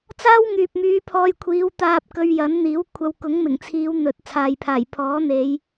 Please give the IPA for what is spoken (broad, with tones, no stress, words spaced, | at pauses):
t͡saː˥wŋyː˨p̚myː˨˧ pʰɔː˧jkʷʰiː˨˧wt̪aː˧p̚ kɵ˧ɥjɐ˨˥nn̪iː˨˥w kʷʰɐ˧w kʊ˨˥ŋmɪ˨˩ŋt͡sʰiː˨˧w n̪ɵ˨t̚ t͡sʰaː˨jpʰaː˨˩jpʰɔː˨˥ n̪e˨˧j